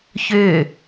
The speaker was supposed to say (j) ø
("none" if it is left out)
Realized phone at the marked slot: ç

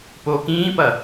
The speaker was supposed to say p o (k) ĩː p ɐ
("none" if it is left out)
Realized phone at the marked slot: k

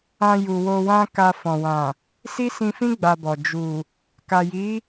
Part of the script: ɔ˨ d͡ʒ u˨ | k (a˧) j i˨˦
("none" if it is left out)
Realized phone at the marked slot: a˨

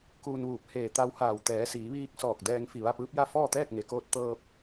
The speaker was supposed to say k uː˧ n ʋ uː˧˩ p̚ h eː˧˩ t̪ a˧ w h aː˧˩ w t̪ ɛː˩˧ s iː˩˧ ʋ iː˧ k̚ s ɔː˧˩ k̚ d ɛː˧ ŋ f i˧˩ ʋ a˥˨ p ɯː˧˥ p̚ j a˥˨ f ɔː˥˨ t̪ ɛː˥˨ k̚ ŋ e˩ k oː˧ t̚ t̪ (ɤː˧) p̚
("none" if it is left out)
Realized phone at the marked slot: ɤː˧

